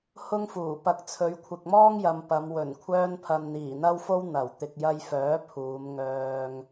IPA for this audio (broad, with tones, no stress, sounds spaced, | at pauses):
h ʊ˥ ŋ f uː˨˩ p ɐ˧ k̚ t͡sʰ ɵ˨˧ ɥ kʷʰ ɪ˨ k̚ m ɔː˥ ŋ j ɐ˨ m p ɐ˨˧ m w ɵ˨˩ n kʷʰ œː˧ n pʰ ɐ˨ n n̪ iː˨˩ n̪ ɐ˥ w f o˥ w n̪ ɐ˨˩ w t̪ ɪ˨ k̚ j ɐ˧ j f œː˨˥ pʰ uː˨˧ m ŋ œː˨ ŋ